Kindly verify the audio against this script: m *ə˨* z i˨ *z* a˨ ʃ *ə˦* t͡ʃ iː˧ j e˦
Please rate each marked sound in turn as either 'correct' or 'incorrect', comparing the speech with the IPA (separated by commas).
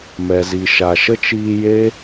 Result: incorrect, incorrect, correct